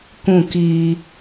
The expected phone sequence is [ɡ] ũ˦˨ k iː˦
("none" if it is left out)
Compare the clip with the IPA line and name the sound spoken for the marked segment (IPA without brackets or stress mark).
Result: k